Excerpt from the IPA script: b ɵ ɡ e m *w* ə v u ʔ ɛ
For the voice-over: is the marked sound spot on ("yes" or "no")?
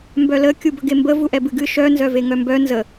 no